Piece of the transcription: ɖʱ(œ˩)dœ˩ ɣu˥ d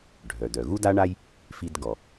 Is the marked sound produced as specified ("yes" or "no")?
yes